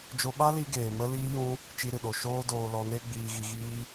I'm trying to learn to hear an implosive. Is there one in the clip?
yes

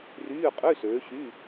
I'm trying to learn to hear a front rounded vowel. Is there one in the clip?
yes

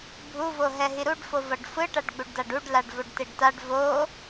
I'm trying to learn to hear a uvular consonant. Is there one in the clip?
no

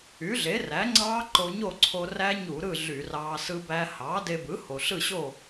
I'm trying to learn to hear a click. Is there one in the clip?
yes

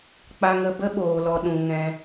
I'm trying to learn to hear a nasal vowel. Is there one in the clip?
yes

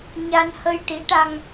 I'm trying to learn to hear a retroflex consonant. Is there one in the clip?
yes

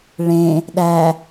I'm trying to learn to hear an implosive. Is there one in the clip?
yes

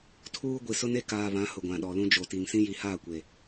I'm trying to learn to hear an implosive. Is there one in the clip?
yes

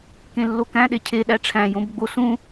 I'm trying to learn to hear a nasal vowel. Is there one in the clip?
yes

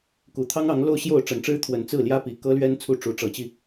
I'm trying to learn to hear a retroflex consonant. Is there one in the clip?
yes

